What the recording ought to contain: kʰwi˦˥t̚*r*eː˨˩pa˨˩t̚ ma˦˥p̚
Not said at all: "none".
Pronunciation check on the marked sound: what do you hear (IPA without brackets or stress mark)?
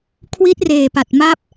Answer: r